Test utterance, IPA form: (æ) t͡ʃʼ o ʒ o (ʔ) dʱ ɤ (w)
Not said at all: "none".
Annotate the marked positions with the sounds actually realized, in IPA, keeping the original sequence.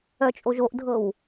œ, ʔ, w

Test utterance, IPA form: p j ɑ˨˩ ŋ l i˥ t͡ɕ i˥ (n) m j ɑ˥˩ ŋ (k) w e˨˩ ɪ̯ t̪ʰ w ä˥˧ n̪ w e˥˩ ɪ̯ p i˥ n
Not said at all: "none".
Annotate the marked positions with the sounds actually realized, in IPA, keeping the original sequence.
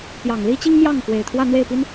ŋ, k

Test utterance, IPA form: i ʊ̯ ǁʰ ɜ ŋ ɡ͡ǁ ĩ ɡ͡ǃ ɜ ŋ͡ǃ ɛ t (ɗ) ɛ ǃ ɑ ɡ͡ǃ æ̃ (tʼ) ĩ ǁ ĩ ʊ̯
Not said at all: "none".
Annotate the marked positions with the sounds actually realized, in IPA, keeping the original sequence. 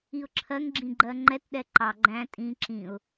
ɗ, tʼ

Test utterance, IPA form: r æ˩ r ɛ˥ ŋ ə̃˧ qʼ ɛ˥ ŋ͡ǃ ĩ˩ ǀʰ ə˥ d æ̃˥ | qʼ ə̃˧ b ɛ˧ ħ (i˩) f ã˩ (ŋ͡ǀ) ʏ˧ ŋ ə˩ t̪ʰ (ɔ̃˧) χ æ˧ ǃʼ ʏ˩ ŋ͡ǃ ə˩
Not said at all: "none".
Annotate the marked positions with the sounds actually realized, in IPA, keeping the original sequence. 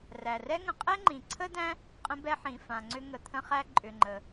ĩ˩, ŋ͡ǀ, ə̃˧

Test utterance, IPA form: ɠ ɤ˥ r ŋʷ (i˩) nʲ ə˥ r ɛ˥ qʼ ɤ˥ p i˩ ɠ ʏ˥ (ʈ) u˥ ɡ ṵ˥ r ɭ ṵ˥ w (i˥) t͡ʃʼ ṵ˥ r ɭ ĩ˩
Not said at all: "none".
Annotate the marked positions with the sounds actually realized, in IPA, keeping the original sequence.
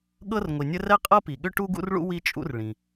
i˩, ʈ, i˥

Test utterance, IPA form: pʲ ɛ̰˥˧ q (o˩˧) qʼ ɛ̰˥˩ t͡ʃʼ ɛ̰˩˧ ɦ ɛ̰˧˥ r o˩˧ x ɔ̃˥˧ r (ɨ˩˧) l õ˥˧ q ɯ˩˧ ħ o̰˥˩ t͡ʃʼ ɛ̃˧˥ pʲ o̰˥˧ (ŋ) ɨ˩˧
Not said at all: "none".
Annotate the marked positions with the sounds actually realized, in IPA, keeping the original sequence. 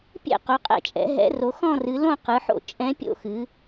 o˩˧, ɨ˩˧, x

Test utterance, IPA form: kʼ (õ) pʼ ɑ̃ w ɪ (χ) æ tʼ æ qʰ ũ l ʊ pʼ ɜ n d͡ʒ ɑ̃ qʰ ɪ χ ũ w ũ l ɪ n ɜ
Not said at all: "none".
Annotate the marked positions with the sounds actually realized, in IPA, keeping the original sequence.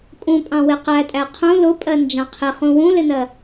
ũ, q

